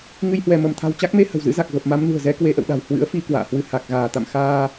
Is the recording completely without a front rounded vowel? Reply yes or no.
yes